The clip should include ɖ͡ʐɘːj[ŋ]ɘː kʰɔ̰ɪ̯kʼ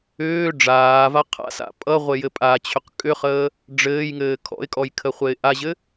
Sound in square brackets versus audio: correct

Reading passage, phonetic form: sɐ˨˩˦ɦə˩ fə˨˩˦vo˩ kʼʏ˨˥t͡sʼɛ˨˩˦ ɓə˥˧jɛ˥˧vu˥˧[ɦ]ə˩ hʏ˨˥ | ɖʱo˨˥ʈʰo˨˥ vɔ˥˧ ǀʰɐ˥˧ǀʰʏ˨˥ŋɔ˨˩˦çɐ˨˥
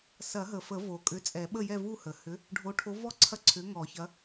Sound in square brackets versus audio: incorrect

